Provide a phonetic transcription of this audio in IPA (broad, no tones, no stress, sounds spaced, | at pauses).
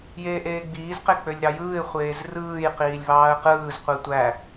j eː ʔ eː ɡ͡b iː z q e k͡p ø lʲ ɾ ɑ j ɯː ɪ̯ χʷ eː z r ɯː j q iː lʲ v ɑː ə̯ q ɯː z qʷ i tʷ æ